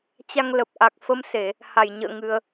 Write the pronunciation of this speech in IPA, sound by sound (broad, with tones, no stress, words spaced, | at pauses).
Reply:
t͡ɕa˧ŋlə˨˩p̚ʔa˨˩k̚ fə˧mse˧˩˨ | ha˧˩jɲə̰ː˧˨ ŋɨ˧ə̯